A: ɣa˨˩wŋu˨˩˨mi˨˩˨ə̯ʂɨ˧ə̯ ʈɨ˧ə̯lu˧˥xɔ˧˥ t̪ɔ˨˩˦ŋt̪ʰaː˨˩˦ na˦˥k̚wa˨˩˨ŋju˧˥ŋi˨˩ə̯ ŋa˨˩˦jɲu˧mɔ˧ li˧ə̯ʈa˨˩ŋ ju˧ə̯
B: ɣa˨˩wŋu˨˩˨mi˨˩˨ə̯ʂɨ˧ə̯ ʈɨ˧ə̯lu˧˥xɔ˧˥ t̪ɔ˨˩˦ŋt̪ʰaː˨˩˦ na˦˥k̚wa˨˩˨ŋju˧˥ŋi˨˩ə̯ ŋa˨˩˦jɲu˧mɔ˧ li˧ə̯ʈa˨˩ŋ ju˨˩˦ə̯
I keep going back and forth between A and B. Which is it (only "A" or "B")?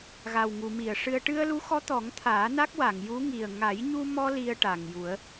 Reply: B